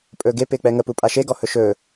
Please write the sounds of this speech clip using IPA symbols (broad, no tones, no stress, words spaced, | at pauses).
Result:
pʼɵːɡe pɪːk͡pɛŋə pupʼaʃe ɡɔhɵʃɵː